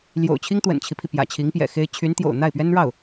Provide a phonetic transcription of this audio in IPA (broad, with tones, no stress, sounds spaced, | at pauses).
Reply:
l j o̰˨˩ ʊ̯ t͡ɕʰ i˥ ŋ t̪ w ə̰˨˩ n t͡ɕʰ i˦ pʰ i˩ p j ä̰˨˩ t͡ɕʰ i˧˥ ŋ p j ɛ̰˨˩ x e˥ ɪ̯ t͡ɕʰ y˧˥ n t̪ j o̰˨˩ ʊ̯ n̪ a˥˩ ɪ̯ p ɥ ɛ˥ n ɻ ɑ˥˩ ʊ̯